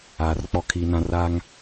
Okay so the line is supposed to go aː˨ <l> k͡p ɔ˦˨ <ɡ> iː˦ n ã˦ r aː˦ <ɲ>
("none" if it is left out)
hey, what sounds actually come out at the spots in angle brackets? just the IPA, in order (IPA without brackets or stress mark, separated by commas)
r, kʰ, ŋ